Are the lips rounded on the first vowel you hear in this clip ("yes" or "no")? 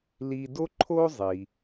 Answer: no